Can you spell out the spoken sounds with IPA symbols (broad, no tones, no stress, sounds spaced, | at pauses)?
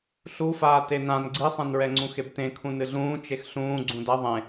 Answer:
ɬ u f aː t e n ã n ɡ͡ǀ i sˤ ẽ n ɹ ɛ ŋ͡ǀ ũ x e b t ẽ kʰ ũ n ɨ ɮ ũː t͡ʃ e x ɬ ũː ɡ͡ǀ ũ d ɐ ðˤ ẽ